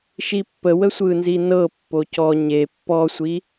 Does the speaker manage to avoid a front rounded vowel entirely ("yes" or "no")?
yes